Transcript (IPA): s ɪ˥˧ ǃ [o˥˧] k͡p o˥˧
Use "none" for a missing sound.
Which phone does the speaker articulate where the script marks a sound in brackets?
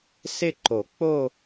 o˨˩˦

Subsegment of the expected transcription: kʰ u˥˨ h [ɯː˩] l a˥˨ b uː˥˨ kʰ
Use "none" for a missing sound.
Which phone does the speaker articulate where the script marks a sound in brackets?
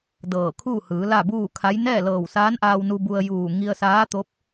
ɯː˩˧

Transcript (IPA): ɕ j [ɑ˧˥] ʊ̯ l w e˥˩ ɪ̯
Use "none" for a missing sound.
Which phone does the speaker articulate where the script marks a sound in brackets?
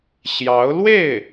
ɑ˧˥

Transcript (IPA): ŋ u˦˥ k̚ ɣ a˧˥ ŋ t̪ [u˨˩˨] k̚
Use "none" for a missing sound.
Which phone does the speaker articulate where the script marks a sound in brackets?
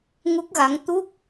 u˦˥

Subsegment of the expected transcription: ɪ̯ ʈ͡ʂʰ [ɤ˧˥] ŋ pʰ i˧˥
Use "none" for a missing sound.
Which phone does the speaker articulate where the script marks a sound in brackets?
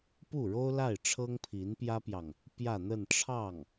ɤ˥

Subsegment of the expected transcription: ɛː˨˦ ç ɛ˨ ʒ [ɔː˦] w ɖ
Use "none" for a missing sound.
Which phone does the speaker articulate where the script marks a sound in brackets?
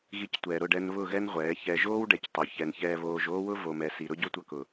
oː˦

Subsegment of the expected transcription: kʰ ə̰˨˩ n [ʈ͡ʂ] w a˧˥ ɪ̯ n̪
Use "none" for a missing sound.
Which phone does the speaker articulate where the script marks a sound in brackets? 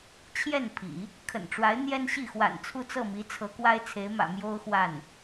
ʈ͡ʂ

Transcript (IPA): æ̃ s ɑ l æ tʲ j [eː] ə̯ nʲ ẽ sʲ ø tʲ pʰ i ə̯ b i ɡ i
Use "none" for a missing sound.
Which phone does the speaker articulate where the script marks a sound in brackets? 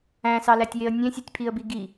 e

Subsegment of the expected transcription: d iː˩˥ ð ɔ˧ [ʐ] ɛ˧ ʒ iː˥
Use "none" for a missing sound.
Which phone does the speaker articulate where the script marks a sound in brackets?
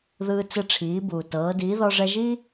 ʐ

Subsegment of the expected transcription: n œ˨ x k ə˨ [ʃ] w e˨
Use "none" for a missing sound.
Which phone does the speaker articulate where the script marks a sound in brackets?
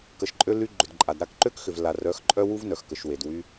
ʃ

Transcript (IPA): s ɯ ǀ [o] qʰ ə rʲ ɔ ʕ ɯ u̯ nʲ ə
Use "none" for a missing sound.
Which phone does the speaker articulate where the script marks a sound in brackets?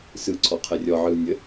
ɔ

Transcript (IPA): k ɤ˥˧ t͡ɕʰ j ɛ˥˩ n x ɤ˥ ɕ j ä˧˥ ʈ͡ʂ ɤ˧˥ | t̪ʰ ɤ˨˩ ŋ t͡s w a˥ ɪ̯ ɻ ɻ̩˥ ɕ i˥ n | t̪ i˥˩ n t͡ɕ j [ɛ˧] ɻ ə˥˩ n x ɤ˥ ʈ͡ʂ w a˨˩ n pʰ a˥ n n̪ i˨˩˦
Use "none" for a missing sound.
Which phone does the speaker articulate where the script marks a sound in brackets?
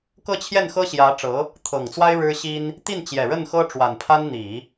ɛ˨˩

